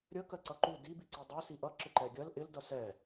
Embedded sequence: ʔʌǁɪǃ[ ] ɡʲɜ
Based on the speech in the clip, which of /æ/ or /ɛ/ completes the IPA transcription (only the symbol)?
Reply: ɛ